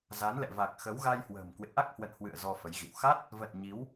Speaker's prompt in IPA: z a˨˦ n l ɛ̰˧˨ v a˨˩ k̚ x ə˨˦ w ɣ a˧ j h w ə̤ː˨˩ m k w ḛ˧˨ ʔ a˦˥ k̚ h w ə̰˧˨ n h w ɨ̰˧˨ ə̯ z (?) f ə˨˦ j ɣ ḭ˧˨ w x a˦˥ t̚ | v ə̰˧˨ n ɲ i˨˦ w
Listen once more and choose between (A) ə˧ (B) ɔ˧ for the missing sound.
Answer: B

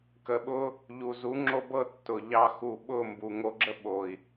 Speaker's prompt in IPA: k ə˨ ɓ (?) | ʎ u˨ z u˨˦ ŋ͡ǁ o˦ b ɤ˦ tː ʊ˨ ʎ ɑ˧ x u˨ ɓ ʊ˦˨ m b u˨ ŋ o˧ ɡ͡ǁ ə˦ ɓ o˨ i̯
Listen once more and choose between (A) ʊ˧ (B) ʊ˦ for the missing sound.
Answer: A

